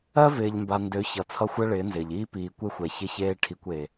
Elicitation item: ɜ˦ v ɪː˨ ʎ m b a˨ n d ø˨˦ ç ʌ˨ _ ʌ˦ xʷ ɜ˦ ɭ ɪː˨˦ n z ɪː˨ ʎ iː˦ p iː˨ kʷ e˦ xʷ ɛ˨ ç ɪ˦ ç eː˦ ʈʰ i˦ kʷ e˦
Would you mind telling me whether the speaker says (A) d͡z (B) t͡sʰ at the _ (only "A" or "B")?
B